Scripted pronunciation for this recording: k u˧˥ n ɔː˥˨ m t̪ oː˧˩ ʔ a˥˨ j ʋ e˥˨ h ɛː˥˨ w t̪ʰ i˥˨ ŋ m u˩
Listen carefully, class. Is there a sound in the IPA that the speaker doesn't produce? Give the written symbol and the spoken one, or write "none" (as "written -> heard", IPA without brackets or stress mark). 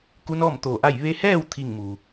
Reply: e˥˨ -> e˧